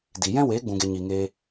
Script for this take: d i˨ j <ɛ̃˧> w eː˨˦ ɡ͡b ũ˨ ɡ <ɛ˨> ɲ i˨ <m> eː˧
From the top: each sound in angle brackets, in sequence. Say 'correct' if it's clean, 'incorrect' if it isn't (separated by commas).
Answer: incorrect, incorrect, incorrect